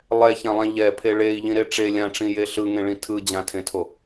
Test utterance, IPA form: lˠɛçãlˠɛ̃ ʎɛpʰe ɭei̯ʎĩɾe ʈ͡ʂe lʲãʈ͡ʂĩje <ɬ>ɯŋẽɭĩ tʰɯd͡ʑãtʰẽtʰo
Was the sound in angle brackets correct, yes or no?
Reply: yes